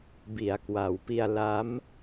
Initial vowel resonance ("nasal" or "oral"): oral